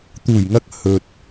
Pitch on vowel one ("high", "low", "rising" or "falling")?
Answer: low